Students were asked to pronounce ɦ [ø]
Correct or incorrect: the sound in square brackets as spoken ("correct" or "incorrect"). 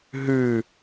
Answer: incorrect